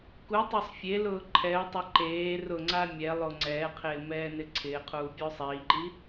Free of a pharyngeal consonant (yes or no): yes